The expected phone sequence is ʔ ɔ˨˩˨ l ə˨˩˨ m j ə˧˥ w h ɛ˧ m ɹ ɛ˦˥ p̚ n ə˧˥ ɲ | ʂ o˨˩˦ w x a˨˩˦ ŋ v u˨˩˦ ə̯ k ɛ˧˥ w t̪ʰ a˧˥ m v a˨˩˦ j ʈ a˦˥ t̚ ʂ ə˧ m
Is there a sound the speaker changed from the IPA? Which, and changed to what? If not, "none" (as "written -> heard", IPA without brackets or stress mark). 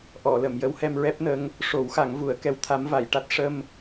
ɲ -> ŋ